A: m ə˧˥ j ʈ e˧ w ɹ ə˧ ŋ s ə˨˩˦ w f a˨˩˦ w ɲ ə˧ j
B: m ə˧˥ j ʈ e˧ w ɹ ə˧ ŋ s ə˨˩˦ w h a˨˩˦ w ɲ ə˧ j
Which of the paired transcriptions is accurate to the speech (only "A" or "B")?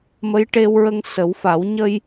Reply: A